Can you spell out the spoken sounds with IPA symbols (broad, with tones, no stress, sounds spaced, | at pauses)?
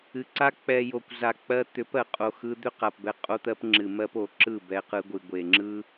ɨ˨ ǀ a˦ k͡p ɛ˨ j o˨ kʷ z a˨ k͡p ɜ˧ t̪ ʏ˨˦ p ɜ˨ qʼ o˨ x ɯ˧ d̪ ʏ˦ q a˨ p b ɛ˧ qʼ o˦ t̪ ɜ˦ p ŋ͡ǁ ɨ˨ m ɜ˦ p o˨ ǁ ɯ˦˨ b ɛ˧ q ɯ˧ ɡʷ ɨ˨ ɡʷ e˨ ŋ͡ǁ ɯ˦